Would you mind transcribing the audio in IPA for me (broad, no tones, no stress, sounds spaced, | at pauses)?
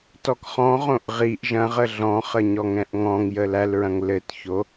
t ɔ k χ ɔ̃ ʁ õ ʔ ʁ i ʔ ʒ ɐ̃ ʁ ə ɮ ɔ̃ χ ə ɲ ɔ ŋ ɛ̃ ʔ ŋ ɔ̃ ŋ j ə l æ l ɹ ɐ̃ ŋ l ɘ t ç o